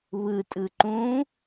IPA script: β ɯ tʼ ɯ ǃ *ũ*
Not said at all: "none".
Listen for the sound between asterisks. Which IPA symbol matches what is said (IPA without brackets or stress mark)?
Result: ũ